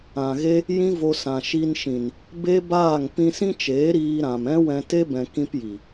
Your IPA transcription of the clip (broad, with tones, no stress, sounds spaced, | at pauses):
ã˨ ɣ e˦ | j ĩ˦ v o˧ s ã˨ ʃ i˧ n ʃ ĩ˨ n | b e˦ b aː˦˨ ŋ p ĩ˧ s ĩ˦ t͡ʃ eː˨˦ ɾ iː˧ ɾ ã˨ m ɛ̃˦ w ɛ̃˧ t e˦ b ɛ̃˨ k ĩ˦ p j i˨